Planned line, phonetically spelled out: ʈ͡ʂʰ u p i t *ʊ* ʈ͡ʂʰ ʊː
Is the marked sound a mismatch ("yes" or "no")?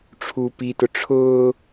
no